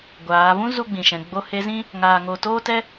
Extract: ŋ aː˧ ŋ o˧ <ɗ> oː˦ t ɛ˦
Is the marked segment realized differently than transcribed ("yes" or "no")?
yes